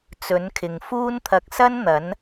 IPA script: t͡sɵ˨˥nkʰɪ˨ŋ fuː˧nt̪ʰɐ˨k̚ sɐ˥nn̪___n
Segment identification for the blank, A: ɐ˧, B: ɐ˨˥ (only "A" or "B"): B